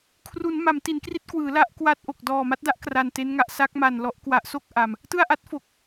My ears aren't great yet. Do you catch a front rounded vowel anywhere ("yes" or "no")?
no